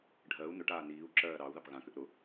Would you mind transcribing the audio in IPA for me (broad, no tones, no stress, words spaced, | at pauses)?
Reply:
ɖʱɜu̯ nʊʈaː niːu̯ǁɜː ɾɑu̯ðɑp ɣãkʏʔ ɾʊ